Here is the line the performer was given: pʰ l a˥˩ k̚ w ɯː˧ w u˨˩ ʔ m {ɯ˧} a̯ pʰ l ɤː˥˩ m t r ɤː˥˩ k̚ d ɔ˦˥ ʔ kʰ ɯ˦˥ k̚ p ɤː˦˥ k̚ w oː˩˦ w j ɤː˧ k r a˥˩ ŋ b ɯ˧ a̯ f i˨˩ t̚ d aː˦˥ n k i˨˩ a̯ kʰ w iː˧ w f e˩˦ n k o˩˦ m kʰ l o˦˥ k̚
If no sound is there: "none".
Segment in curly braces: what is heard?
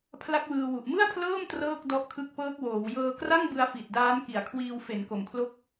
ɯ˥˩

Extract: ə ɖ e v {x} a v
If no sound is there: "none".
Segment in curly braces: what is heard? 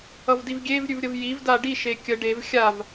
xʲ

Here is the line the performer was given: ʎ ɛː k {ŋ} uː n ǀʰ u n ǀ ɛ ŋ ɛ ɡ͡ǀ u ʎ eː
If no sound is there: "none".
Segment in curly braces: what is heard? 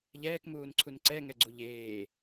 m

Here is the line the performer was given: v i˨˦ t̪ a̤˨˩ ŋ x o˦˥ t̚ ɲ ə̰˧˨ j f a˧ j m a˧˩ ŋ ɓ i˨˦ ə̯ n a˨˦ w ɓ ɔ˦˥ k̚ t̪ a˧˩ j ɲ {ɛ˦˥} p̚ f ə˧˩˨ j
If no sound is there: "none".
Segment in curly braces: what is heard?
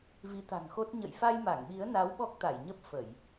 ə˦˥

